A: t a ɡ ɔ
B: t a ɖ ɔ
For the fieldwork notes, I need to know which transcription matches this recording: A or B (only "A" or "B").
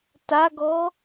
A